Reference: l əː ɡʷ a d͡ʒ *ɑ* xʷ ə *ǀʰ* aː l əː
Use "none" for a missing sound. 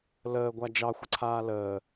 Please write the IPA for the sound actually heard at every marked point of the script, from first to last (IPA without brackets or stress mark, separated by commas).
ɑ, ǀʰ